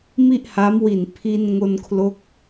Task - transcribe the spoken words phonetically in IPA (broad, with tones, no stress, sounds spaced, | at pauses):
m i˥˩ ʔ h a˦˥ m w i˨˩ n pʰ i˧ n ŋ o˧ n kʰ l o˦˥ k̚